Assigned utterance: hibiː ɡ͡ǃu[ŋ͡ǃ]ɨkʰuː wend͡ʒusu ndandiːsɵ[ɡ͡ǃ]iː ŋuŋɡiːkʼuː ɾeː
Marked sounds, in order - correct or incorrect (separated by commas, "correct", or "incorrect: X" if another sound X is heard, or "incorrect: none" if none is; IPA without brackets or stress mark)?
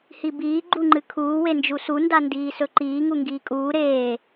correct, incorrect: ǃ